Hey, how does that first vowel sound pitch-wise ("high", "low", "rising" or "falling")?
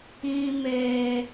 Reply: high